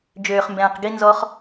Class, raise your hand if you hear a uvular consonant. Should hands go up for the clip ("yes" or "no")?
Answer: yes